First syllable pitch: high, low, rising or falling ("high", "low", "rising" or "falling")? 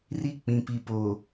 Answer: high